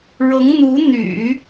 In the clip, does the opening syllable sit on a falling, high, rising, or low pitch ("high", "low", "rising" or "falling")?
rising